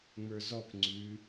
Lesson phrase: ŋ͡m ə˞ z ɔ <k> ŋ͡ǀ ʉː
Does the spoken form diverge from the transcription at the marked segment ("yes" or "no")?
no